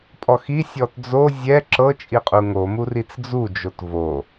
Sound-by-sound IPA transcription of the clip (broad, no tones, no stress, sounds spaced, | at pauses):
pʼ ɔ x i sʲ ɔ t d͡z o zʲ ɛ ǁ ɤ t͡ʃʼ i qʼ u ŋ o m u r i t͡s d͡z u d͡ʒ o t v o